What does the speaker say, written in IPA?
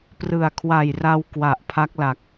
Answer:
prɯ˨˩a̯kʰwa˨˩jra˧w kwa˨˩ʔpʰa˦˥k̚la˨˩k̚

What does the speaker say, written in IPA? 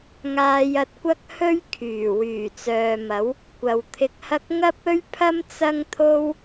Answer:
ŋaː˧jɐ˧t̚kʷɐ˥k̚ hɵ˥ɥ kʰyː˨˩ wyː˨˩t͡sœː˨mɐ˨˥w | kʷɐ˨wt̪ʰɪ˧k̚hɐ˥k̚ ŋɐ˥p̚ɵ˥ɥpʰɐ˥m t͡sɐ˥ŋt̪ʰo˥w

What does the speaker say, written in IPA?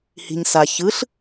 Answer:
hi̤ɲsa çɯɬ

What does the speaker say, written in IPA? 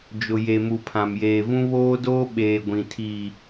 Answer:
d͡ʒʊ˨je˨mu˨ pʰã˨mjeː˨vũ˦ βoː˦doː˦ɓeː˨ ɡʷĩ˨tʰiː˨

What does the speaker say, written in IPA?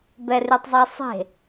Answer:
bɛrytˤzˤesˤe̤

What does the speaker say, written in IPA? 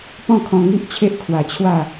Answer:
pɔ̃˥˧kʰɔ̃˧ŋi˦ʔt͡ɕʰe˦ʔ kʰwa˧t͡ɕʰwa˥˧

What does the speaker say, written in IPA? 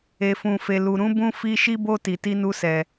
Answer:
e˦fũ˦fe˦lu˦ ɾũ˦bũ˦ fi˦ ʃi˦bo˦ ti˧ti˦nu˦sɛ˧

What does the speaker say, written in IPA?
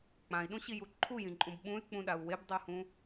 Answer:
k͡pãi̯ɗũɕiju ǃʰujĩǃʼũb ɓũy̯k͡pũɗau̯ webdˤuhũ

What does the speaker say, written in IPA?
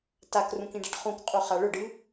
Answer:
takrũk ĩɖaʈχũkqʼu χaɭɵɖɨ

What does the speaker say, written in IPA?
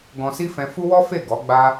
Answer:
ɡɔ̃˧si˦ fɛ̃˧fu˦wɔ˦fe˦˨ ɡɔ˨˦ɡ͡ba˦

